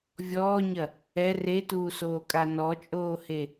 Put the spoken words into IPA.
vʲɔːɲɐ | ɛ retuːsoːkʼa nɔt͡ʃʼoːhe

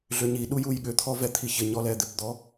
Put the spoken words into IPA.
ɮʏɲiɗu jujɠʏt̪ʰɔ vɛt̪ʰiçɪɲɔ lɛd̪ɪpd̪ɔ

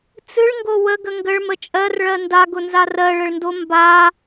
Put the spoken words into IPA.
t͡sɨɭŋɡo wəɡə ŋɡəɭmə t͡ʃʼɜrɭɜ ndaɡʊnza rɜɭəɭndo mba

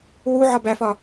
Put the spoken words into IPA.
wu ʕɒbæfɒ

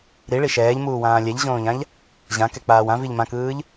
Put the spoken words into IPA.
ɾiɭi ʃɛːʎmuːwãː lʲɛʎʑõːʎãʎ | ʑãkɛk͡paːw ãviʎ mãkɯːʎ

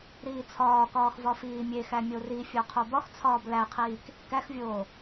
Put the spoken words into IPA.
ɾiːt͡sʰɒːkɒːx vɒfiːmʲexæ mʲorifʲo qʰobɒxt͡sʰɒːb læqʰiːk | kæxvʲoː

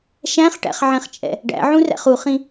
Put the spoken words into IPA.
ʃæ̃χʈæ̰χʕɛ̃χt͡ʃʼɛ̰ | ɖæ̰ʕũræ̰χ uχĩ

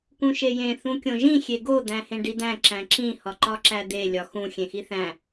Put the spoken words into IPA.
kũʃejẽ θũkʲõʒĩ xʲeɡo d̪æ̃hẽɖid̪æ̃ ǁæ̃ǁĩ hɒǃɒǁæd̪e lʲɒxũ xʲẽxiθæ̃

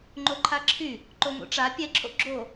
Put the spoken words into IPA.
ŋ͡ǃoǃʰaǁʰy | ǃoŋo̰ʈ͡ʂa pʲɛǁʰo̰ ɡ͡ǁo

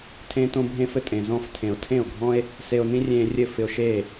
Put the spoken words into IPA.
tʰẽː˦tõ˦bʱẽː˦fɘ˨ tʼẽ˨zɔ̃˧f tʰẽ˨o̯tʰẽ˦˨o̯ɡʱɔ̃˦e̯ | se˧o̯nĩ˦rʲẽː˧rʲɘ˦˨ fɪ˧o̯ʃeː˦˨

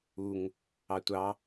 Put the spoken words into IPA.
uŋ | ɑtʷɑ

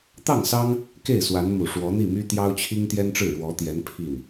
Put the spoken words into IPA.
t̪ɑ˥˩ŋsɑ˥ŋ | ke˥˩ɪ̯swa˧˥nmu˨˩ ʂwɔ˧˥n̪i˥˩my˥ t̪jɑ˥ʊ̯t͡ɕʰi˥ŋt̪jɛ˥nʈ͡ʂɻ̩˥˩ ɻwɔ˧˥t̪jɛ˧˥n pʰi˥˩n

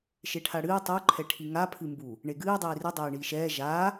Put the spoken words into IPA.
ʃeʈʰaɽɨː tˤu ǃʰɛʈʰiŋa pʰɨmbu | ɳeɡɨː dˤiːrɨ dˤɛːɳiːʃɛː ʒaː

